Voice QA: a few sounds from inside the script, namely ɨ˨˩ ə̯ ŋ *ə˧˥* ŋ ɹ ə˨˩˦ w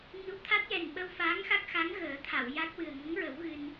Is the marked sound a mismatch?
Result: no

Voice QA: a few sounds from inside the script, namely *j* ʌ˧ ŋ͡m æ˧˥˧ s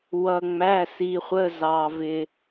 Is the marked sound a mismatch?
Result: yes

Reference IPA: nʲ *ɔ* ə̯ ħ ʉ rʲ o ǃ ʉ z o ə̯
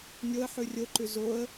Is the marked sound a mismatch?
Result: yes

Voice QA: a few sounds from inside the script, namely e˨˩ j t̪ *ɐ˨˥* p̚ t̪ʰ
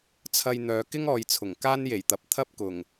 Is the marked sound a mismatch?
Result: no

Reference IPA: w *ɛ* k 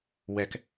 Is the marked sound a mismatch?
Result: no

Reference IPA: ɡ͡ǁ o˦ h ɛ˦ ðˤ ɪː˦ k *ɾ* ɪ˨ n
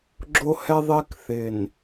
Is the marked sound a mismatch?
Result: yes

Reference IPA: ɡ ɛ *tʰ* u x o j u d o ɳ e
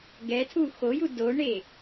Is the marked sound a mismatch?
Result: no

